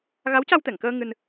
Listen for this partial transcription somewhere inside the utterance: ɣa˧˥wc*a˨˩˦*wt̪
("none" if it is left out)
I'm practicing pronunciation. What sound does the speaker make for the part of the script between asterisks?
a˧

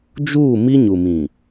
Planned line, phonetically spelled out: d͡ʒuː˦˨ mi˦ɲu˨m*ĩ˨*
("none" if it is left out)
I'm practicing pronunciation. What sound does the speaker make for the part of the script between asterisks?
ĩ˨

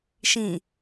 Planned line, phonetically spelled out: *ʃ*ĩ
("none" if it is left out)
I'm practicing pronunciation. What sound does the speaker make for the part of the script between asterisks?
ʃ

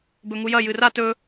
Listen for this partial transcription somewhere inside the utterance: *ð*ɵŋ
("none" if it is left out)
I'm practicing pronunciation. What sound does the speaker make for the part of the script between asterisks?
b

